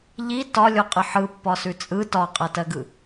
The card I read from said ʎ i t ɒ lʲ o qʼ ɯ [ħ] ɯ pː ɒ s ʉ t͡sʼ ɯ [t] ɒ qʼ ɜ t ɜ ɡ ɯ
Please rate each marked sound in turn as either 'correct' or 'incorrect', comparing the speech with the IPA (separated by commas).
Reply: correct, correct